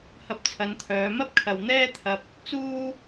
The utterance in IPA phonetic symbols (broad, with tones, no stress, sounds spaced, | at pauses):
h ɐ˧ p̚ t͡sʰ ɐ˨˧ n t̪ʰ œː˨˧ m ɐ˥ p̚ kʰ ɐ˨ w n̪ ɛː˥ t̪ʰ ɐ˧ p̚ | t͡s uː˥